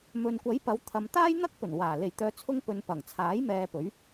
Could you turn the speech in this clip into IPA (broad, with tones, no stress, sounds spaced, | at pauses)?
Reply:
m ɵ˨ n kʷ ɐ˨˥ j p ɐ˨˧ w t̪ʰ ɐ˨ m t̪ aː˥ j n̪ ɐ˥ k̚ p ɵ˨˩ n w aː˨˩ l e˨˩ j t̪ œː˨˧ t͡sʰ ʊ˧ ŋ p ɵ˨ n p ɐ˨˩ ŋ t͡sʰ aː˨˥ j m ɛː˧ p ɵ˨˥ ɥ